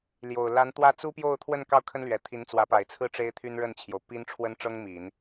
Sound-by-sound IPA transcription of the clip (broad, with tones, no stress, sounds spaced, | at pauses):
l j o˨˩ ʊ̯ l a˧˥ n t̪ w ä˥ t͡s u˥ p j o˥˧ ʊ̯ t̪ʰ w ə˥˧ n k ɑ˥˩ ʊ̯ kʰ ə˥ n l ɥ ɛ˨˩ t̪ʰ i˧˥ n t͡s w ä˧˥ p a˨˩ ɪ̯ t͡sʰ ɹ̩˥˩ ʈ͡ʂ e˥ ɪ̯ t̪ʰ y˥ n ɻ ə˥˩ n t͡ɕʰ j o˩ ʊ̯ p i˥ n ʈ͡ʂʰ w ə˥ n ʈ͡ʂ ɤ˥ ŋ m i˨˩˦ n